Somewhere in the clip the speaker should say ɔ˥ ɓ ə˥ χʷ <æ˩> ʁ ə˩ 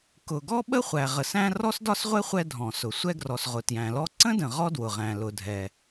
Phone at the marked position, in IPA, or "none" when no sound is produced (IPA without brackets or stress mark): æ˩